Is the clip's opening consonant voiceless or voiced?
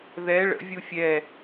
voiced